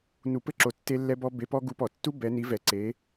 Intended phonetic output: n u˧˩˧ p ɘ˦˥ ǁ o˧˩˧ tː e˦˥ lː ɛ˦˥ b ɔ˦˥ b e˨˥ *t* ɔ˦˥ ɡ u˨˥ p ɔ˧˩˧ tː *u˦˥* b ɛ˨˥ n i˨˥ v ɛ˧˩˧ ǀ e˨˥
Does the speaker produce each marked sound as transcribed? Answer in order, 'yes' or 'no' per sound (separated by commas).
no, yes